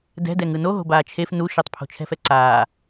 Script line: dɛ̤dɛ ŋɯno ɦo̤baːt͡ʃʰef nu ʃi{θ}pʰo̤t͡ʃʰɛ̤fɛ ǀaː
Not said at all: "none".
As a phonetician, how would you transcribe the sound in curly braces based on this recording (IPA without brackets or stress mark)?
tˤ